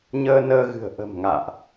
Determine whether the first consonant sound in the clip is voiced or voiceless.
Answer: voiced